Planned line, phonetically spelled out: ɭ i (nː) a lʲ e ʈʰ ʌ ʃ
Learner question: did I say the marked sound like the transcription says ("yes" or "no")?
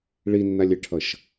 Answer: yes